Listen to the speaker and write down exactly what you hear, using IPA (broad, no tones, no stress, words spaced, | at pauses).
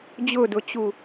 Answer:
d͡ʑʊdʊt͡ɕu